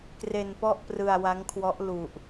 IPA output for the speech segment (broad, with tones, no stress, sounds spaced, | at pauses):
k r e˧ n p ɔ˥˩ ʔ p r ɯ˧ a̯ w a˦˥ ŋ kʰ w ɔ˦˥ ʔ l u˨˩ ʔ